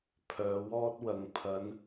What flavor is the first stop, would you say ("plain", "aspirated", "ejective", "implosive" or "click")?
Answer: aspirated